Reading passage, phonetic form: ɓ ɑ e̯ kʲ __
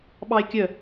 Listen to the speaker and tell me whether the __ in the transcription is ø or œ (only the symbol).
œ